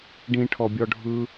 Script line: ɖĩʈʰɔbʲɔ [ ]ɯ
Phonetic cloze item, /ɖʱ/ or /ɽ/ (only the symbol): ɖʱ